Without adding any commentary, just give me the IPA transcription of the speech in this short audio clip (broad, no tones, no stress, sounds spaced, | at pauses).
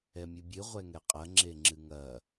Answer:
ɛ mʲ ɨ bʲ ɨ ʁʷ ɛ ŋ ɛ qʼ ɐ ŋ͡ǁ e ŋ͡ǁ ɨ ŋ ɐ